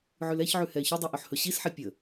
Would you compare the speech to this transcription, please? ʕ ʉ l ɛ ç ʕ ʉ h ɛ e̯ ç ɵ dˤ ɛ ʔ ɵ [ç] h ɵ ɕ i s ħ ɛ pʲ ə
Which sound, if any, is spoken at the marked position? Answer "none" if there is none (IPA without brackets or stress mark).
ħ